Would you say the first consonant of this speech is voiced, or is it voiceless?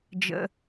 voiced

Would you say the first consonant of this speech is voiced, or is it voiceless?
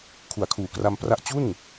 voiceless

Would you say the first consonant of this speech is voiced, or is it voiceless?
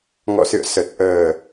voiced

